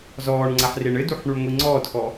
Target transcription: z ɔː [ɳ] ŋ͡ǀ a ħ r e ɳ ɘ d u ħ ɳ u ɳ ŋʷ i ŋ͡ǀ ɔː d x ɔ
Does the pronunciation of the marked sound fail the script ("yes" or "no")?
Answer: no